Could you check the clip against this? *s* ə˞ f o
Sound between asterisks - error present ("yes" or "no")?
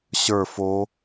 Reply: yes